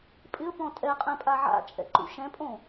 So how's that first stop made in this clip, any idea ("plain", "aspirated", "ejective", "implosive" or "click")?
ejective